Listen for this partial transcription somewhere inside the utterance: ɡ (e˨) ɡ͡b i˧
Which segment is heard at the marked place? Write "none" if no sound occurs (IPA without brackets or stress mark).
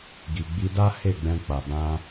i˨